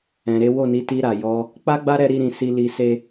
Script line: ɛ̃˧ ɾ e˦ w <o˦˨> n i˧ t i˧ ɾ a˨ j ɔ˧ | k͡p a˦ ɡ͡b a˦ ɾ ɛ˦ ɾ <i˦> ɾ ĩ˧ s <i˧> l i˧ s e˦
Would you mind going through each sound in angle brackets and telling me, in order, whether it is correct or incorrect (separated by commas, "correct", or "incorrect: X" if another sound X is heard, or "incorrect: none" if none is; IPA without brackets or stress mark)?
correct, correct, incorrect: i˦